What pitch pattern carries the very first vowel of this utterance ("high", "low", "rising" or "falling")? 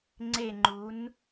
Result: falling